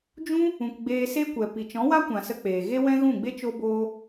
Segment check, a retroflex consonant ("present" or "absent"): absent